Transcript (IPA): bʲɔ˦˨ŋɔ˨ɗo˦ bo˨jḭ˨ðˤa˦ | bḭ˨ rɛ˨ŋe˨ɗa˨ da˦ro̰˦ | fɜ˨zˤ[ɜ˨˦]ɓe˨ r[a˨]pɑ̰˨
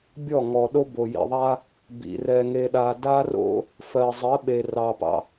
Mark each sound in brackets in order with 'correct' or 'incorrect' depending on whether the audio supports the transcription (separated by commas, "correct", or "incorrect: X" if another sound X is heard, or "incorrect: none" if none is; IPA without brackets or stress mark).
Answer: correct, incorrect: ɑ˨